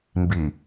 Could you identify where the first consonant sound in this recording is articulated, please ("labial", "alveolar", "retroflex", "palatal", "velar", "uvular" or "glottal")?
labial